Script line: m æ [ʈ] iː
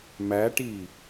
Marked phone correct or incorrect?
correct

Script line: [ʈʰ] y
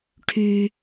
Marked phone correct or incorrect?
correct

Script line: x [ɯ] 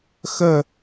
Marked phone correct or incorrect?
incorrect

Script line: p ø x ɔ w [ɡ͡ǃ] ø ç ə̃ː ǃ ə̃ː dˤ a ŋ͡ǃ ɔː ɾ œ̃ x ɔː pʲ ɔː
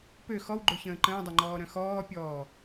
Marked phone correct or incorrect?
correct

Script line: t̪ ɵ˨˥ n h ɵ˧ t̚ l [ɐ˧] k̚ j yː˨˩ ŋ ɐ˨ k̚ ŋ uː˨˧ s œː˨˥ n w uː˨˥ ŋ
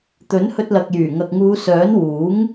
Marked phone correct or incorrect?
incorrect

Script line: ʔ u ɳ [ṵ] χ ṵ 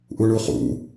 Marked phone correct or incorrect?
incorrect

